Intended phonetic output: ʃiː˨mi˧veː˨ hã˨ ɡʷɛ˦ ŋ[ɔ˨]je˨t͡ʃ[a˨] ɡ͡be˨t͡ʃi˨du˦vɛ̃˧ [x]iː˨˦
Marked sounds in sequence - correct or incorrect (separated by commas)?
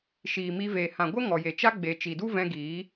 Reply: correct, incorrect, incorrect